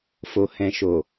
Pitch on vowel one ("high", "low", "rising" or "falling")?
low